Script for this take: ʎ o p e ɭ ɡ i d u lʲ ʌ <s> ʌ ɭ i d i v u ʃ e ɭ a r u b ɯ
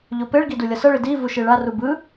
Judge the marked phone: correct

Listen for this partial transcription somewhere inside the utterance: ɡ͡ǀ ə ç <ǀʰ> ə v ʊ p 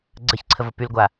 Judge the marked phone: correct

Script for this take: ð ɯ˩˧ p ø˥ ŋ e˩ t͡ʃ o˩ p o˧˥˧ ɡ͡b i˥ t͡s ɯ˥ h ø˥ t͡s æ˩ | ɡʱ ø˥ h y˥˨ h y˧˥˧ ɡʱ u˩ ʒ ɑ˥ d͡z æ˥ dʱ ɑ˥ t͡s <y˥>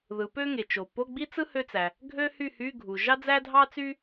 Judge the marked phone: correct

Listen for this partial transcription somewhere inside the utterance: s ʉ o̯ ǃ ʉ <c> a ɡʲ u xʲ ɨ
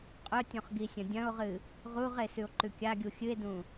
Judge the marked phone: incorrect: kʲ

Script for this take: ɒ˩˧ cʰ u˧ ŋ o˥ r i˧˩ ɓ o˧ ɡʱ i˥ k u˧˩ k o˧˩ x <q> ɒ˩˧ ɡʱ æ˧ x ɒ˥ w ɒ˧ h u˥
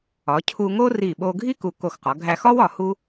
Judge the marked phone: correct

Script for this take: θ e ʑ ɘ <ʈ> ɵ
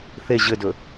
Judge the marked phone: incorrect: d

